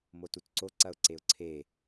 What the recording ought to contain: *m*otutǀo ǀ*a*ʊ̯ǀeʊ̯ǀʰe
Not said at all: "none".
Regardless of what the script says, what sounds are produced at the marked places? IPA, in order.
m, ɐ

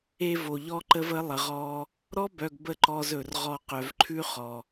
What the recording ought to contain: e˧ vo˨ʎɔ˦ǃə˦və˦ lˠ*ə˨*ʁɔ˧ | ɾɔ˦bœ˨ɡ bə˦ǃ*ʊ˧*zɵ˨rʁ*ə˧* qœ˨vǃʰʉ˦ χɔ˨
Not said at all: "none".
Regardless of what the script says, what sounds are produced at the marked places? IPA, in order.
ə˨, ɔ˧, ɔ˧

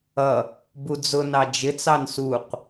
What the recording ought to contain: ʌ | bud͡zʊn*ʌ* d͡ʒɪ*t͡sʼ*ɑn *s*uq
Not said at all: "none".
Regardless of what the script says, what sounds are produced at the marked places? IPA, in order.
ɑ, t͡s, s

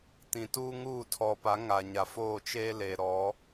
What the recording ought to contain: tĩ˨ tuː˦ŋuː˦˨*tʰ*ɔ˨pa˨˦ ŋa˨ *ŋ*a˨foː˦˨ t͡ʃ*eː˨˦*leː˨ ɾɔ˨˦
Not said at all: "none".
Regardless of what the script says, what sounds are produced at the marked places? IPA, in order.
tʰ, ɲ, eː˦

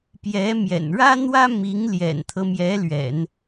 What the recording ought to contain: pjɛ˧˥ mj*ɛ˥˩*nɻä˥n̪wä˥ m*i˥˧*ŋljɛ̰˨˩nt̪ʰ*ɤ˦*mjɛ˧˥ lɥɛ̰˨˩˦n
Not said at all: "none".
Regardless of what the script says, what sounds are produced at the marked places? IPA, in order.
ɛ̰˨˩, i˧˥, ɤ˦

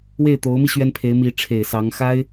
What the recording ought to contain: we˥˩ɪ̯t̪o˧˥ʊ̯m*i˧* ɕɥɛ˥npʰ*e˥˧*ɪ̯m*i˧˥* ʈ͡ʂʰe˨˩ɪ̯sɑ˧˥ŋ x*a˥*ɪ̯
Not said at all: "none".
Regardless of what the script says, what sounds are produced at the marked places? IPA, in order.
i˧, e˧˥, i˧˥, a˥

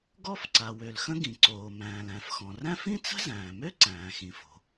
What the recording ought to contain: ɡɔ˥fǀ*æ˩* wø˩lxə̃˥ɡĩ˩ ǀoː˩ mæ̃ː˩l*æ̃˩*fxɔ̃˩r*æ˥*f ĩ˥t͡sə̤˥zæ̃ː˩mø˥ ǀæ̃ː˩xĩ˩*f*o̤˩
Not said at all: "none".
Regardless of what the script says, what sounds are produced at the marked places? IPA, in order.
a˩, æ̃˩, æ̃˥, f

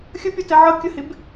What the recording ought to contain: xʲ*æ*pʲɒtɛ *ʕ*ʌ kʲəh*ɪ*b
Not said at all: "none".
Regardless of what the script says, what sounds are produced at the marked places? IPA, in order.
ə, ʕ, ɪ

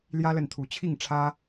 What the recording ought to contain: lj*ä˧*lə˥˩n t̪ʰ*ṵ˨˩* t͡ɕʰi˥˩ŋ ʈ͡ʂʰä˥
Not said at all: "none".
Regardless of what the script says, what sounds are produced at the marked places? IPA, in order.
ä˥, u˧˥

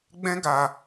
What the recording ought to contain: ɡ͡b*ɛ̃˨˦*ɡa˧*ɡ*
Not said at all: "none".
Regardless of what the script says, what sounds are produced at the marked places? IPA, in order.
ɛ̃˦, none

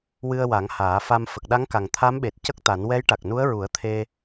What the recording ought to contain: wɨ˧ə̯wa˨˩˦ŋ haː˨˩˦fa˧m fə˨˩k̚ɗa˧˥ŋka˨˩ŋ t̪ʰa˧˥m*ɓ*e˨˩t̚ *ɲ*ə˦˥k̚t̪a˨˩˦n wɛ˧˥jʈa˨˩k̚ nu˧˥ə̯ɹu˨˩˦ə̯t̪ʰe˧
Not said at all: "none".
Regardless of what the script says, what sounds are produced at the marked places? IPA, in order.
ɓ, c

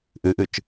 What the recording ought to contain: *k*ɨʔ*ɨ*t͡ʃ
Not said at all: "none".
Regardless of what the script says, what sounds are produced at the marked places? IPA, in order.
ʔ, ɨ

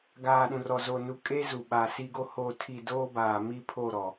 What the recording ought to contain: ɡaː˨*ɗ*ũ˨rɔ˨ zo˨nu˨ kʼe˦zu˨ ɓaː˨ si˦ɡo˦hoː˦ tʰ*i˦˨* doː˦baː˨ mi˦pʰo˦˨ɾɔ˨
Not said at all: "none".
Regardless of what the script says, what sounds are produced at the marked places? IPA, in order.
ɗ, i˦˨

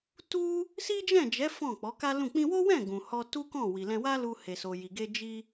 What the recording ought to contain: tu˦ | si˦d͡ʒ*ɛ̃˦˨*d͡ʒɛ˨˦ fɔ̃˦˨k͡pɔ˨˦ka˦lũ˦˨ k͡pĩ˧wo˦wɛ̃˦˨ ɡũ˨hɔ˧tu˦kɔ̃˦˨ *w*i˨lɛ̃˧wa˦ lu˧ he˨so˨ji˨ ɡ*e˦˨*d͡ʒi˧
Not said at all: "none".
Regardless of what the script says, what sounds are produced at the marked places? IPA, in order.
ɛ̃˦˨, w, e˧

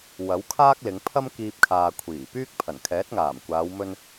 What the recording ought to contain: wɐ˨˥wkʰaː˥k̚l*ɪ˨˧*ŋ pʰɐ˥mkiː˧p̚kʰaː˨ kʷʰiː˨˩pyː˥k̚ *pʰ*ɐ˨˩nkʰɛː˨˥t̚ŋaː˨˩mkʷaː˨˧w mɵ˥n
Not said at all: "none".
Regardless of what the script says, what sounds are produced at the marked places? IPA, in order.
ɪ˨˧, pʰ

